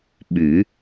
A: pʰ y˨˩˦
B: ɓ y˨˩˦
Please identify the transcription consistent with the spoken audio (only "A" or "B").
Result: B